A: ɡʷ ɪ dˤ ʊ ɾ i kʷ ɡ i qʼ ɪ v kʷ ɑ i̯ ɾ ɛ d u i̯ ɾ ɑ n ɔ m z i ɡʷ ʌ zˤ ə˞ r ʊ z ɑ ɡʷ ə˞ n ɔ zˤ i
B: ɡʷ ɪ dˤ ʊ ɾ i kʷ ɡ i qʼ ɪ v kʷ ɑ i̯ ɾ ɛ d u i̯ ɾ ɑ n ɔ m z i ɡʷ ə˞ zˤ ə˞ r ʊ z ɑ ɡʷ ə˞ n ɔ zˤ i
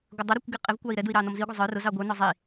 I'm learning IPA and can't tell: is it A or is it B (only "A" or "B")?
A